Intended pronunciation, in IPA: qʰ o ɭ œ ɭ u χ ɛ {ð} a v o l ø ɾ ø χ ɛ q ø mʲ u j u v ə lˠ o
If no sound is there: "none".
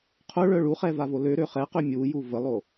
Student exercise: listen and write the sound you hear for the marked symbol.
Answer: v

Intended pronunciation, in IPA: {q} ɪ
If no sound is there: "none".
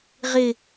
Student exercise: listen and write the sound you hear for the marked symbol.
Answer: ʁ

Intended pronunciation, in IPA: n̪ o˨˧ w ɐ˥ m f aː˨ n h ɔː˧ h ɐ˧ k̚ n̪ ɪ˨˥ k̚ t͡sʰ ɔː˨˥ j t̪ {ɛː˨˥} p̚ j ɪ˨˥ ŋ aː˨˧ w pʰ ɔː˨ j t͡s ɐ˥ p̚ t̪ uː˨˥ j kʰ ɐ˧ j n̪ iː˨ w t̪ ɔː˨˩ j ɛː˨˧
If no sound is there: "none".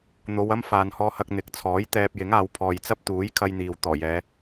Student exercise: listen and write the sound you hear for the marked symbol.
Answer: ɛː˧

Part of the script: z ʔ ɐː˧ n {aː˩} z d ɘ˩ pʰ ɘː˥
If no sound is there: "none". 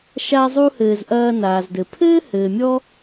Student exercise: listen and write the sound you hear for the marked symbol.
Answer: aː˩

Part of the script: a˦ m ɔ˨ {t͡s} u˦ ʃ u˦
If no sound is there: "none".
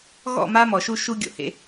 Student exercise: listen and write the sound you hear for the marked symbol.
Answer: ʃ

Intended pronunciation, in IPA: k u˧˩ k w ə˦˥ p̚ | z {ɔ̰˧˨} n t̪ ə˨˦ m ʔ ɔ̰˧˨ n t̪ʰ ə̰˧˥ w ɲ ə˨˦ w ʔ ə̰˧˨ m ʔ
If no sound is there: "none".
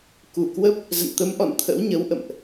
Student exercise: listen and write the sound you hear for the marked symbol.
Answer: ə̰˧˨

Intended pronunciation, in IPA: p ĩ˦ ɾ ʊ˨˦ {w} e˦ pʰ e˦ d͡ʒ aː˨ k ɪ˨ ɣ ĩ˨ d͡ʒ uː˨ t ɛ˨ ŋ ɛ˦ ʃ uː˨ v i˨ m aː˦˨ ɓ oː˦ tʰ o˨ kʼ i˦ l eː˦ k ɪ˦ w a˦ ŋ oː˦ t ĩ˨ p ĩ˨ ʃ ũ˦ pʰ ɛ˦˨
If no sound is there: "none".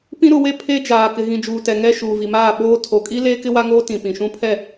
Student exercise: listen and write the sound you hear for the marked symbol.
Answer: w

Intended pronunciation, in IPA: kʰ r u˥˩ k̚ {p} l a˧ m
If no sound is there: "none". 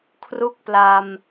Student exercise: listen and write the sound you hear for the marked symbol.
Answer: p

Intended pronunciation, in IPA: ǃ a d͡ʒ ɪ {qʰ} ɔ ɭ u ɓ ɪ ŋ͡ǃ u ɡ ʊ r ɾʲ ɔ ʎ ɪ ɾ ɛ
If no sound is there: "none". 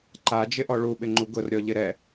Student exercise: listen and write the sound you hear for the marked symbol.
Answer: ʔ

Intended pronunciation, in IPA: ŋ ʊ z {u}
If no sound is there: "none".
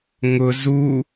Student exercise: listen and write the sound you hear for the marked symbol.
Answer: u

